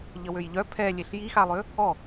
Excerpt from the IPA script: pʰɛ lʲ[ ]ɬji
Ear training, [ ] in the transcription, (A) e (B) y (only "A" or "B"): A